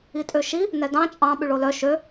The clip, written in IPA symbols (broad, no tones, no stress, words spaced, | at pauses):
itʼøʃi | nɛdɑ̃ t͡ʃʼɑ̃ ɓʉɭolœ ʃø